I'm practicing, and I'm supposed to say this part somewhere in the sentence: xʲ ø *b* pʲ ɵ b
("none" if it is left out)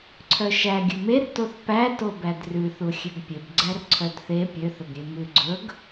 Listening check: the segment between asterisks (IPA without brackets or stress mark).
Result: ɡ